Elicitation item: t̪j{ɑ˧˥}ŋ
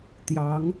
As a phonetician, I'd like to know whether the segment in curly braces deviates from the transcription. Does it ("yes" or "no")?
no